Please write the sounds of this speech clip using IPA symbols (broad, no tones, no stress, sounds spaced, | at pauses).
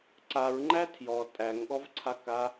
ǀ a ɹ ŋ͡ǃ æ tʰ j ɔ tʼ æ ŋ ɠ ɔ v ǀʰ a k a